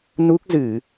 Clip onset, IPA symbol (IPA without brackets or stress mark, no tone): n